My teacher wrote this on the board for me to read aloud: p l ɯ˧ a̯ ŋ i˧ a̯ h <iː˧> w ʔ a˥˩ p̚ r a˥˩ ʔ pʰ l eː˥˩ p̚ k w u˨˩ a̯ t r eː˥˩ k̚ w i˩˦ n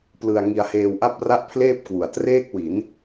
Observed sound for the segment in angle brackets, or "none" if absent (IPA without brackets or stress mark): eː˧